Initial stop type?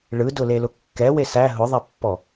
plain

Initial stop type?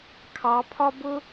aspirated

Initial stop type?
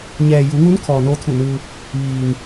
aspirated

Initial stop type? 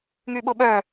implosive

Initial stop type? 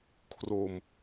aspirated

